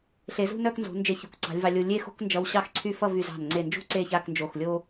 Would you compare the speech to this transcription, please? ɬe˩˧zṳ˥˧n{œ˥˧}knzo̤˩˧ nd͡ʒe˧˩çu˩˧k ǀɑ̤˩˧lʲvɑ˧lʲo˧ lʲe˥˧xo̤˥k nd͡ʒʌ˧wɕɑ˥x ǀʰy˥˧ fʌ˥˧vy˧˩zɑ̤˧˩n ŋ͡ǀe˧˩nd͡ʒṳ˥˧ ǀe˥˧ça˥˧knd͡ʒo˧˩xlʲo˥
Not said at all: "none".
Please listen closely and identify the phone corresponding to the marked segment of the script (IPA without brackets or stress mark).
œ˥˧